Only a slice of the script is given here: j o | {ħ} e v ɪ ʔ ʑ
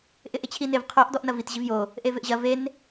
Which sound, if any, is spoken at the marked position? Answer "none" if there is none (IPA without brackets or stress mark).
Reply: ʔ